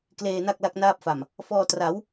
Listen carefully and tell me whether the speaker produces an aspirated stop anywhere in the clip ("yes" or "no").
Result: no